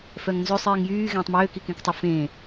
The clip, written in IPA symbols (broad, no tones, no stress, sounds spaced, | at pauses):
f œ ŋ n z ø sˤ iː ŋ j yː ɣ ẽː tˤ m øː k i k ẽ k tˤ ə f ẽː